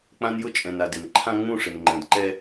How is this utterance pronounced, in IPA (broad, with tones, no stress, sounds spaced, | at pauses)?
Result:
k͡p ã˦ n j ʊ˦ t͡ʃʼ ɛ̃˨ n a˨ d ɪ˨ n ǃʰ ã˦ ŋ͡m ũ˦˨ ʂ ɪ˨ n ŋ͡ǃ ɛ̃˨ d ǃ ɛ˦